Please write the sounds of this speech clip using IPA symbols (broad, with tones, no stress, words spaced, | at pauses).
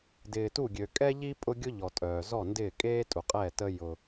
dɪː˨tu˦˨ɡʲø˨ kʼɛ˦ʎi˦ pʼʊ˦ ɡʲʊ˦ʎɔ˨ tʼœː˨zɔ˦˨ndɪː˦˨ kʼeː˦tʼu˨qʼɛ˦˨tə˦ jʊ˦